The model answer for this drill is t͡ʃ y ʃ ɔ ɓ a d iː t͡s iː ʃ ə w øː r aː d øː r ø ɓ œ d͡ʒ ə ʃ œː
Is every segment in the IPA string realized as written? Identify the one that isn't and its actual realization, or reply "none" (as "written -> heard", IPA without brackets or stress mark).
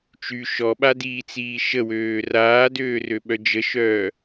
none